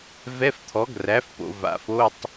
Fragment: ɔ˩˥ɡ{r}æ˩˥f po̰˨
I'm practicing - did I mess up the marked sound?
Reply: no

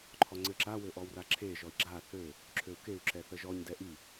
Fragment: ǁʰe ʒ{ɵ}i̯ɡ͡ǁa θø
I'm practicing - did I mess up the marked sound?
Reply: yes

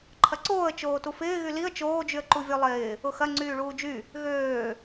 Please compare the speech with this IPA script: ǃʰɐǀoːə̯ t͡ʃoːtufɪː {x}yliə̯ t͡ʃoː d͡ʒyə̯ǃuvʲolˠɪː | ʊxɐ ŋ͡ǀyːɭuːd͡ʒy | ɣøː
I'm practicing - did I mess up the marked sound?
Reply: yes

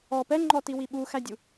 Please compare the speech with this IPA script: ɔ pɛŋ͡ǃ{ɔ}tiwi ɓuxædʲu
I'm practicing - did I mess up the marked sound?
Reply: no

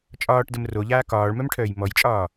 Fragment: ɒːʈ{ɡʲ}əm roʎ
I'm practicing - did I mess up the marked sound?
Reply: yes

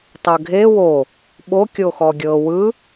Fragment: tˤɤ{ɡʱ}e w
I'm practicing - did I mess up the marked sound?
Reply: no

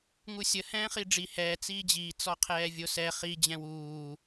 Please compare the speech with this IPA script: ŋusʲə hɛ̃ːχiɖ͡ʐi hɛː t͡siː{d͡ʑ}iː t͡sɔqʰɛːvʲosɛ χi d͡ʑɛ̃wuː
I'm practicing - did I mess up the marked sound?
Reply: no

